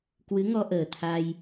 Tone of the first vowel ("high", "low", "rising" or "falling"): rising